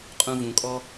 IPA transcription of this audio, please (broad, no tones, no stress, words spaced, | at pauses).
qʼũvũkʼɔ